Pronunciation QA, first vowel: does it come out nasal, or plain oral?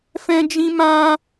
nasal